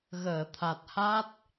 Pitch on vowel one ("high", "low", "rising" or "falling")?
low